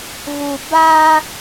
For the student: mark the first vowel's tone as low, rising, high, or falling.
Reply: low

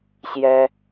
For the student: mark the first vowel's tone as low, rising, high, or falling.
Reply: high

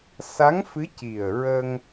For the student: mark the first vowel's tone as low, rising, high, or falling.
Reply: rising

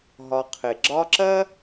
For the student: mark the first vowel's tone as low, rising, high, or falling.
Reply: low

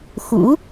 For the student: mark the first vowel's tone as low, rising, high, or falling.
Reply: rising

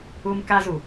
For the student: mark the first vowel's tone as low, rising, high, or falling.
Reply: high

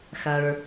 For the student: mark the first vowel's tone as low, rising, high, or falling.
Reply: low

